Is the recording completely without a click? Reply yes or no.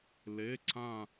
no